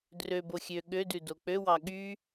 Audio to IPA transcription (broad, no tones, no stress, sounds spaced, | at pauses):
d r ø b o xʲ ø ɠ ø d ʉ d o k͡p ø w ɑ ɠ y